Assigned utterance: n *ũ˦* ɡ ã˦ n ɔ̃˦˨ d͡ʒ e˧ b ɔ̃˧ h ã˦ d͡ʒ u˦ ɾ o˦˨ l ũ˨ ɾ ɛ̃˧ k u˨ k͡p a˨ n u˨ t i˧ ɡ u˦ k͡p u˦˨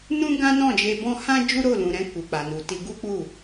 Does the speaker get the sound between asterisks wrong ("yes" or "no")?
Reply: no